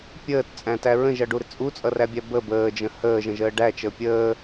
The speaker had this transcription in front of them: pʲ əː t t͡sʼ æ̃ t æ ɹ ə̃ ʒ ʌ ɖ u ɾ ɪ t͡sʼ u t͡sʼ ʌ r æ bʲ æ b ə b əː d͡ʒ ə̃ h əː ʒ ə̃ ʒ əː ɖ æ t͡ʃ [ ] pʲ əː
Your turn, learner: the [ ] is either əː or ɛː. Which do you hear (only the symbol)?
əː